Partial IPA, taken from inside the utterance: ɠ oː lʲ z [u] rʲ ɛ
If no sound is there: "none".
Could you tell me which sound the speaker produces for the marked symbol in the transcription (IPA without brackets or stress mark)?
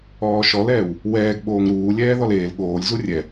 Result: u